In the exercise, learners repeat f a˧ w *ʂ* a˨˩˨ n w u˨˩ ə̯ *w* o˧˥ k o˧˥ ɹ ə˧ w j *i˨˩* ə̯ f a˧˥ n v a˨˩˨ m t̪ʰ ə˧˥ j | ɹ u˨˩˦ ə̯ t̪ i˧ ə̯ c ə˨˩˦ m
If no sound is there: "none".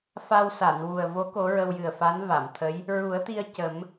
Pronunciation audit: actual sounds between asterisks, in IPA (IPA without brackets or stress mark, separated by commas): s, v, ɨ˨˩